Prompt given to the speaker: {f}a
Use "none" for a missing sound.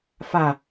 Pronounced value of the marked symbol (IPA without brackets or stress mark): f